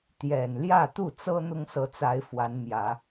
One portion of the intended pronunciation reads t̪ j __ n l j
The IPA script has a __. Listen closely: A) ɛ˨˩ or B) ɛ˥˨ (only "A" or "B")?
A